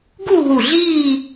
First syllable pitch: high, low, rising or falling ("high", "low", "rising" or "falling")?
falling